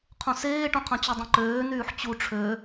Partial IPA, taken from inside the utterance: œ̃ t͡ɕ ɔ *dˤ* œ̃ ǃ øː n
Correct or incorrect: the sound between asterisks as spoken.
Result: correct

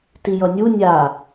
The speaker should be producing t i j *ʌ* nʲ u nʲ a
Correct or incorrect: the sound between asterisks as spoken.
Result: correct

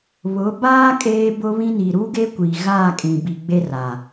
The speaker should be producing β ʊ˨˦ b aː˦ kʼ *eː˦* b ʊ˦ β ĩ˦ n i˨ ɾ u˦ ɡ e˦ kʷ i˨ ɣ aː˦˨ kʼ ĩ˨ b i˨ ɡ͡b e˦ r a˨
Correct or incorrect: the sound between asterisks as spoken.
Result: correct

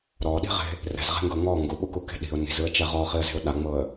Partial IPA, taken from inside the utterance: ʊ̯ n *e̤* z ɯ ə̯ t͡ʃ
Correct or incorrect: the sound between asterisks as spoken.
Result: incorrect: i̤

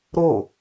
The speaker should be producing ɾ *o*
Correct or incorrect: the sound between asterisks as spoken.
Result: correct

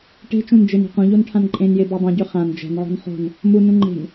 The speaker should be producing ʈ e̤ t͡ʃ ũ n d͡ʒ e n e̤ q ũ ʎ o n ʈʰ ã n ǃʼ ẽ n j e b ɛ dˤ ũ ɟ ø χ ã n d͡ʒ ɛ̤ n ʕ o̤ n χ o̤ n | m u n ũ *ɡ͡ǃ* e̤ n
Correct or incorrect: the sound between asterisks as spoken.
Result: incorrect: ŋ͡ǃ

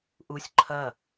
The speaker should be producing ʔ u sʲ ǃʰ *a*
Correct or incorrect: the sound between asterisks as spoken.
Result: incorrect: ɐ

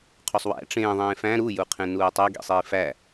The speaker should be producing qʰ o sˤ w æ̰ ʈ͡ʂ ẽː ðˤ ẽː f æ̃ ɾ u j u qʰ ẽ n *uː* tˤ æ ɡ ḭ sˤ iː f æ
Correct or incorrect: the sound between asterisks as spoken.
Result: correct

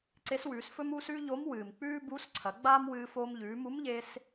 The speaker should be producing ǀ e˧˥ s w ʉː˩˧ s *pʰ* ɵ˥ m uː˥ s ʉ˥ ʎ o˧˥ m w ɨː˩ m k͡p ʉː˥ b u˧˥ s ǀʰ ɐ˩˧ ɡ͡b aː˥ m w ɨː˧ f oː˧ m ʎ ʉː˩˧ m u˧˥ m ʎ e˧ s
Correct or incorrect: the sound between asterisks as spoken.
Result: incorrect: f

